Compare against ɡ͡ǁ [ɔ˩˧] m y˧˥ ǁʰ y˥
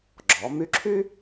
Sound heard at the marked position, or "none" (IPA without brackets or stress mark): ɔ˩˧